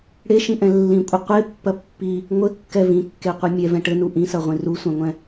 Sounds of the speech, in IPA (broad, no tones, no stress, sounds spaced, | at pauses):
ɽ e ʃ ĩ ʔ ɛ̃ lː ĩ kʷʼ ɨ qʷ e pː ɐ pː i | ŋʷ ɘ kː ɛ v ĩ kː e qʷ ɨ mʲ ɛ v ɛ̃ ʈ ɘ n u ʔ ĩ s ɐ ʁʷ ĩ r u sʷ ɛ̃ ŋʷ ɛ̃